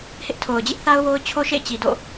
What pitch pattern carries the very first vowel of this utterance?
high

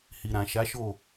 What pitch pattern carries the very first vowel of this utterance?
low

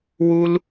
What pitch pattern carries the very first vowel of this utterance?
high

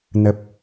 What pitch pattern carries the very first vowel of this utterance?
low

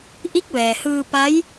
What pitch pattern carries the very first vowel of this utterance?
rising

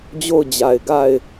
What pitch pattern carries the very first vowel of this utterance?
falling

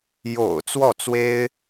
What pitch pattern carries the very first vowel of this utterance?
low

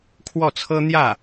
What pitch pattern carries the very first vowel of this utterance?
falling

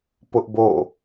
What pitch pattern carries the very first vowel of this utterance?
high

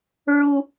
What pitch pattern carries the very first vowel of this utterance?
high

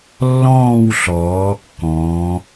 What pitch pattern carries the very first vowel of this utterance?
falling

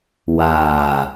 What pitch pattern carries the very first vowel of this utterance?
low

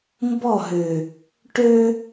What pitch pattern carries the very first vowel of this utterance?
falling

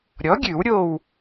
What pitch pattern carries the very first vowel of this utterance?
rising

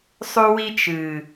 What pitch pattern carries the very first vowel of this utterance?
high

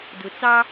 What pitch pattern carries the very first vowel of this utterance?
low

